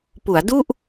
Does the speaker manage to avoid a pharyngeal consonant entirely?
yes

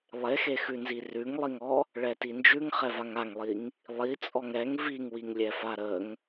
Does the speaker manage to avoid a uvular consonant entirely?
no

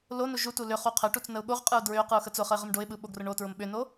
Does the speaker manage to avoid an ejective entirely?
no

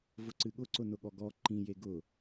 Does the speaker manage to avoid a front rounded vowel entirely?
yes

